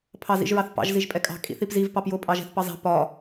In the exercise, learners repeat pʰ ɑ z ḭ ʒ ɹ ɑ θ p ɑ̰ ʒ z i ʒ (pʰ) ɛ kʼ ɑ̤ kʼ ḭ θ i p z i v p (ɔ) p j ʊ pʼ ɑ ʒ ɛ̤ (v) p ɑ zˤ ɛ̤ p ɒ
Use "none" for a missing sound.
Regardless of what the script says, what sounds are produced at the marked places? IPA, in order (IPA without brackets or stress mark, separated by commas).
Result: pʼ, ɑ, θ